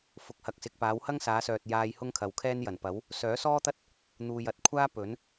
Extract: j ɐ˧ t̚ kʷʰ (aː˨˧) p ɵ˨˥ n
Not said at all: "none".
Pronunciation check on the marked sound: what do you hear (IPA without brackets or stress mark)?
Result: aː˥